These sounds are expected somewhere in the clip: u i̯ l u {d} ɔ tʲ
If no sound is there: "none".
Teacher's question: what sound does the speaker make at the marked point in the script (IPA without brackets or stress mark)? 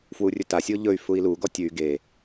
ɡ